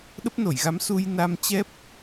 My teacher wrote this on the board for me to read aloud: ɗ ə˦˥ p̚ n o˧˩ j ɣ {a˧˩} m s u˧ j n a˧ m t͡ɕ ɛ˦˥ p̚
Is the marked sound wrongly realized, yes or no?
yes